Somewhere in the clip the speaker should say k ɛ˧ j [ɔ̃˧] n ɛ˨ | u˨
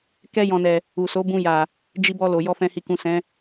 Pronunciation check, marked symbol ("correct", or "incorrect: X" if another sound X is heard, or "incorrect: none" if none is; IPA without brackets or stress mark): incorrect: ɔ̃˨